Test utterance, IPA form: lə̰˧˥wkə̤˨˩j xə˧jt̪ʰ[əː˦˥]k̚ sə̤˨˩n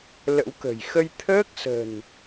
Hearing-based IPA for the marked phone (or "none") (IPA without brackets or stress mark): əː˦˥